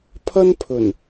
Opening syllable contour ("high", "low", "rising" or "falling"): high